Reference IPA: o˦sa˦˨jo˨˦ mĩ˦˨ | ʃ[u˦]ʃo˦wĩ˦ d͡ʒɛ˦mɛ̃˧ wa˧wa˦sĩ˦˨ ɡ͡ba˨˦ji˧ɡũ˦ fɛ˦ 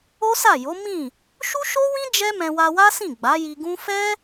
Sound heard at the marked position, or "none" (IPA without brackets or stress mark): u˦